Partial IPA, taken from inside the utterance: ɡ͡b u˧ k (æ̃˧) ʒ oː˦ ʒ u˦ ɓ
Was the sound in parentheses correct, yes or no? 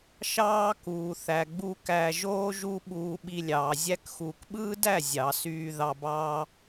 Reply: no